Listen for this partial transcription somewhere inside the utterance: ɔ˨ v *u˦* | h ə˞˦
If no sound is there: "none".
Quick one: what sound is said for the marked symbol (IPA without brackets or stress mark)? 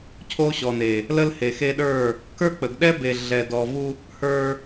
u˦